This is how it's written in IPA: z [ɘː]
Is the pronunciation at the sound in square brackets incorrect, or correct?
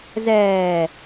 incorrect